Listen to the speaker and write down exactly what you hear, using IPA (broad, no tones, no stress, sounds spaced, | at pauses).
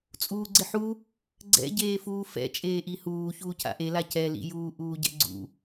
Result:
t͡sʼ uː ɡ͡ǀ ɪ ħ u | ɡ͡ǀ ɛ̰ ɟ eː f uː f ɛ̰ t͡ʃʼ eː ʔ i h uː ç uː cʰ a̰ ʔ e l a c ɛ l ḭ j uː ʔ uː ɟ ɛ̰ ɡ͡ǀ ṵ